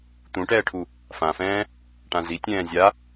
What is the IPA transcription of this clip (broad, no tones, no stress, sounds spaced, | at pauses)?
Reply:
t̪ ũ ʈ ɛː ʈʰ u | f ã f ɛ̃ː | ʈ ã z i tʲ ɛ̃ː zʲ a